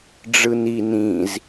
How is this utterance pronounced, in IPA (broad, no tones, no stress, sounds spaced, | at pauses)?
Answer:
ɖ͡ʐ ɯ n i n ĩ z